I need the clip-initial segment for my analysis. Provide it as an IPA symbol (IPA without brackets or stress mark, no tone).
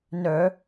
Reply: n